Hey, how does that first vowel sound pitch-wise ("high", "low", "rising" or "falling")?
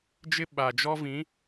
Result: high